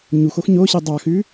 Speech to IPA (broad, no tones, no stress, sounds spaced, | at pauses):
ɲ u x o x ɲ o ɕ i dˤ ɑ x ʉ